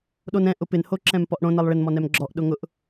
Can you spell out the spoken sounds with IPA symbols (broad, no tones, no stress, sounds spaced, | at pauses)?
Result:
ɗ o n ɛ̃ ʔ ʊ p ɪ n h o ǁ ɛ̃ m p ɔ ʔ ɽ õ n ɛ lˠ ɭ ɪ n m ɔ n ɛ m ɡ͡ǁ ɔ ʔ ɗ ʊ ŋ ʊ ʔ